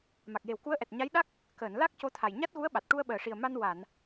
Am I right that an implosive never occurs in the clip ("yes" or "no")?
no